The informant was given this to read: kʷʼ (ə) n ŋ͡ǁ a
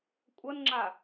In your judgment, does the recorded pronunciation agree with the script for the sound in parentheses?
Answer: yes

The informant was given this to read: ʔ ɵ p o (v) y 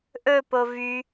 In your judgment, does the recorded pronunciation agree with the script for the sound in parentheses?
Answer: yes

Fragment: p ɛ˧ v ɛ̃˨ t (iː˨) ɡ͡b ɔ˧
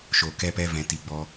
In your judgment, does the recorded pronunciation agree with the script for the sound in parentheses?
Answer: no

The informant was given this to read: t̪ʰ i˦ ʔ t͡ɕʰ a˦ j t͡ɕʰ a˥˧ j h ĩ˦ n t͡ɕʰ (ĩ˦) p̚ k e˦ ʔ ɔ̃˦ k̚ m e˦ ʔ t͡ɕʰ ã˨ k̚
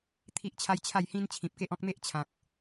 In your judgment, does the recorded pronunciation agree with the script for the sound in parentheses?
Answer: no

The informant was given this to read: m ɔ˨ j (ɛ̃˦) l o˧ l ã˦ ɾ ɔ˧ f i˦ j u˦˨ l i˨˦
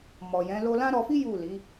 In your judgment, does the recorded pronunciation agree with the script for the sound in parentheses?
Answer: no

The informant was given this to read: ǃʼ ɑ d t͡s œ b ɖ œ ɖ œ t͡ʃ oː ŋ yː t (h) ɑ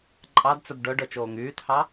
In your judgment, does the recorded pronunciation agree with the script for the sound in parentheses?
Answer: yes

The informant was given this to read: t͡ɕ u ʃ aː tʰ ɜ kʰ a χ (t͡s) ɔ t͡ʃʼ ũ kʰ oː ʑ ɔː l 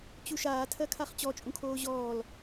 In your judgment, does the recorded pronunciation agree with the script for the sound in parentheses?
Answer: no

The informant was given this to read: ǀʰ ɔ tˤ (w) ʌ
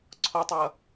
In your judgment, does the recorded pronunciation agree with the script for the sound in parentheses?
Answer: yes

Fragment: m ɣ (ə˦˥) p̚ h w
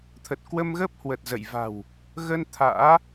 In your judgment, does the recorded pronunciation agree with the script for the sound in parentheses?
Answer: yes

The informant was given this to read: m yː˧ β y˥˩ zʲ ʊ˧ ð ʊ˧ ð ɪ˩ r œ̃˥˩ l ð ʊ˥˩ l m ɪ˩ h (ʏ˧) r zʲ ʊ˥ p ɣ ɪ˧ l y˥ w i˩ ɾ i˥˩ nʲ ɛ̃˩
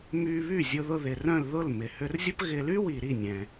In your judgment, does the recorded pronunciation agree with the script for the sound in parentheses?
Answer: yes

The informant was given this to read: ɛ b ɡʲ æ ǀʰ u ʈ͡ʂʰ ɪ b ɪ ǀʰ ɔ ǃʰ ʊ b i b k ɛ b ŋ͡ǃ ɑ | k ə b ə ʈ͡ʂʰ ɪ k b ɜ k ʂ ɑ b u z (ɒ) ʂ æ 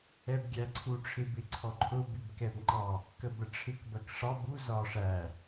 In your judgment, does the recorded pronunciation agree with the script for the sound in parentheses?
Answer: yes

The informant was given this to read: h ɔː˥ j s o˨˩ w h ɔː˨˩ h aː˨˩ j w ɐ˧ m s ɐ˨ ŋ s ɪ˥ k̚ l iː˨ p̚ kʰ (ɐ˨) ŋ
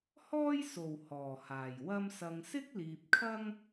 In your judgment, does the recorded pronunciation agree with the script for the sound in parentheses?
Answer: no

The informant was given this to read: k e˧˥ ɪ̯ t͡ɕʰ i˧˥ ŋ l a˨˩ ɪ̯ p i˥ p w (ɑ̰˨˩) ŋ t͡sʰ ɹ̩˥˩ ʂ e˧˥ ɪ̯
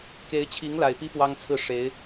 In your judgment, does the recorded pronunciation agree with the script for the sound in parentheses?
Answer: no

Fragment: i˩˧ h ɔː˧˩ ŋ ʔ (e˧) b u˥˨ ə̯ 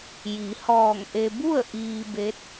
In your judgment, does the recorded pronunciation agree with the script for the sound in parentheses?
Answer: yes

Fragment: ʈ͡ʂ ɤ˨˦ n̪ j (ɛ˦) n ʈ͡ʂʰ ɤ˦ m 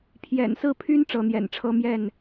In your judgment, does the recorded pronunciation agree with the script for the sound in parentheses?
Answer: no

